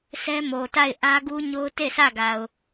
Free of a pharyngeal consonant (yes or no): yes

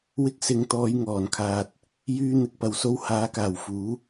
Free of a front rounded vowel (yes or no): no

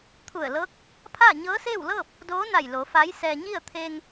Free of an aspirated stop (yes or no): no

